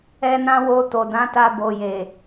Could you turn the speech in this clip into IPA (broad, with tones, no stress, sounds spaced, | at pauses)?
ɛ˧ n ã˧ w o˧ t o˨ d ã˨˦ t a˧ b o˨ j e˨